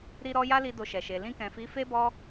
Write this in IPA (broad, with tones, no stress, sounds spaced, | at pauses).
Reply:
ɾ i˧ ɾ ɔ˧ j a˦ l i˧ d o˧ ʃ ɛ˨ ʃ e˨ l ĩ˧ k ɛ̃˨ f i˨˦ f e˦ b ɔ˦